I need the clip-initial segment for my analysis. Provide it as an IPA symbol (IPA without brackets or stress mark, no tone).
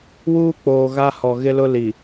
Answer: w